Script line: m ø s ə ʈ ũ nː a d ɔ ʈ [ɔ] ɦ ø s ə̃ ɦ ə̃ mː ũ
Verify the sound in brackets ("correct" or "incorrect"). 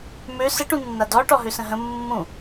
correct